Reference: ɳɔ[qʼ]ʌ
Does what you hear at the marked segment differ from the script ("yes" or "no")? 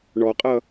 no